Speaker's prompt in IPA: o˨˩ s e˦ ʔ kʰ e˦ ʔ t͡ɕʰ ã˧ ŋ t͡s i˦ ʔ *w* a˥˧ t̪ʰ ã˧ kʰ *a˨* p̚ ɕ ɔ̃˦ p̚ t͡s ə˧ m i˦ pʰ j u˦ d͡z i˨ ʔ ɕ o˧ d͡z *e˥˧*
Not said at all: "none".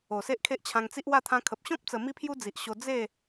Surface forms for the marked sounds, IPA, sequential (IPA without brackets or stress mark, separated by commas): w, ə˨, e˥˧